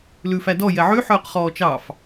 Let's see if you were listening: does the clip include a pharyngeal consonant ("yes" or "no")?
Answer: yes